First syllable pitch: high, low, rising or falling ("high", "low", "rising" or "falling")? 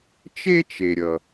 high